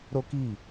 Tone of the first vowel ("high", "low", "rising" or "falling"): high